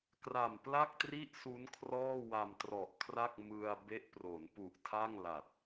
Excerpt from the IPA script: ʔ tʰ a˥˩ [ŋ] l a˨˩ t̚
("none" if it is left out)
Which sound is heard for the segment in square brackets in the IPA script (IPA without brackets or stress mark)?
ŋ